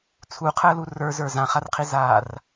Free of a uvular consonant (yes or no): no